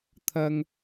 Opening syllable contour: high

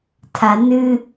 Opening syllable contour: low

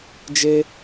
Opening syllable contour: high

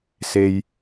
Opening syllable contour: low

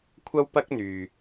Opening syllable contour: high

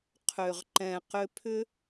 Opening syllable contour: low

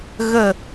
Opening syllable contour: falling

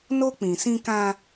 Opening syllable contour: high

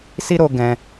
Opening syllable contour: high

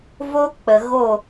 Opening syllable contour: high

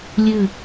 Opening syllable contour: falling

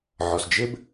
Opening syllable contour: low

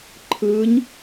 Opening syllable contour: rising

